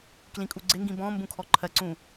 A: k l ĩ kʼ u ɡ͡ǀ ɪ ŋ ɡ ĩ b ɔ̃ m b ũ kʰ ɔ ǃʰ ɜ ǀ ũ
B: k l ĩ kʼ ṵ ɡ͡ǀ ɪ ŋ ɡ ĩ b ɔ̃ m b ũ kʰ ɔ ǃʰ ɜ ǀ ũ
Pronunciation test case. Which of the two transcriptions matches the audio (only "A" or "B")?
A